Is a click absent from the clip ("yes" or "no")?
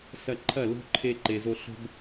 no